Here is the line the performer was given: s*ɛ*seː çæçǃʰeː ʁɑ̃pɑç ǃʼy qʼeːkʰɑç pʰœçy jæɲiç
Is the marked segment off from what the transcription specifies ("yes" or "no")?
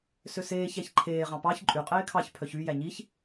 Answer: yes